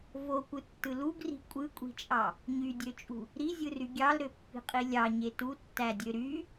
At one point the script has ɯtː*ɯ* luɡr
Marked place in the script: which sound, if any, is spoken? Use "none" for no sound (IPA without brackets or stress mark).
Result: ɯ